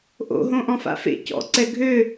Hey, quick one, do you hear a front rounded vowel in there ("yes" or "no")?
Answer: yes